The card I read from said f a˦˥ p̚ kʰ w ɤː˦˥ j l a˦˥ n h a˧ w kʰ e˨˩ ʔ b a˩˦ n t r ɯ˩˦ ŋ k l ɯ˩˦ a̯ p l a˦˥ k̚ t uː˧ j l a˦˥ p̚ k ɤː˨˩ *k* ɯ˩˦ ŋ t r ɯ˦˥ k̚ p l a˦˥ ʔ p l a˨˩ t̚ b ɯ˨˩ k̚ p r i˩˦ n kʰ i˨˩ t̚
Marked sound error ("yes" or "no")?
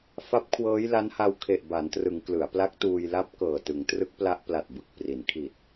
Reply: yes